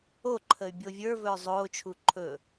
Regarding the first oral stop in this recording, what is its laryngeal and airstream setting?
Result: click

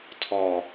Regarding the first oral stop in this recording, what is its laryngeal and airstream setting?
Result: aspirated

